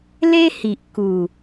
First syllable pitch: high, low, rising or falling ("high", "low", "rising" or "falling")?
high